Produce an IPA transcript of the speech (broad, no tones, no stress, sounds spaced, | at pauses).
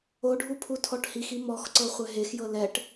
o ɖʱ u pʰ u tʰ ɔ ʈ h i x i m ɔ x ǀ ɤ χʷ ɛ ɦ e x j ɤ l ɛ ʈ